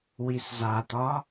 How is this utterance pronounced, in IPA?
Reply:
w i s z a t̪ ɒ

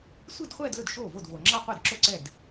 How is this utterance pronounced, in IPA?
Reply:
sʷ i˥˧ d χʷ ɛː˥˧ d l ɵ˥˩ d ʃ oː˥˩ v o˥˩ d v oː˩ ŋ͡ǁ ɑ˥˧ qʷ ɛ˥˩ d ǁ o˥˩ ǀ ɛː˥˩ d

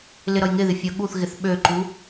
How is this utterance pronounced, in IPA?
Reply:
l ɪ ɾ ʌ j ŋ ɪ ð ɪ fʲ ʌ ɠ u θ ɣ ɪ θ ɓ ø ǃ u

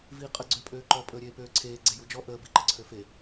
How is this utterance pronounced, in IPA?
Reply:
v iː qʼ ə ɡ͡ǀ ø pʼ øː ǃ ɔ pʼ əː ɾʲ eː p øː ǀʰ eː ɡ͡ǀ e j u d͡ʒ ɔ ʔ əː b i ǃ ə ǀʰ ø f e

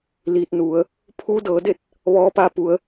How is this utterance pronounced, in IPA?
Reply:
l iː˧ t̚ n u˩˧ ə̯ | pʰ uː˧˥ d ɤː˩˧ d e˥˨ t̚ | ʋ ɔː˧˥ p a˧ p u˩˧ ə̯

